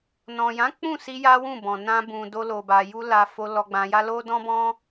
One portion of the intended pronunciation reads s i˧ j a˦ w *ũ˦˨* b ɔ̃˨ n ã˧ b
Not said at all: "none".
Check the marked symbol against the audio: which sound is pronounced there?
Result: ũ˦˨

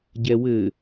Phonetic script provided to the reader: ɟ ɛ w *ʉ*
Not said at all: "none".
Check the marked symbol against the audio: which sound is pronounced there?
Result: ɘ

